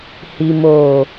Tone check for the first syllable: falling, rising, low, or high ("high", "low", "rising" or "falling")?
low